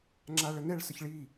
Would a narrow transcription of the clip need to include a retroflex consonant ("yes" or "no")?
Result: yes